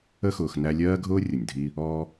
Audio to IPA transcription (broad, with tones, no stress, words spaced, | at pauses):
ə˦xʊː˨x næ˦ lʲɜː˥ɡʱʊː˥ rʲʊ˩nʲdʱi˦ | ɔː˦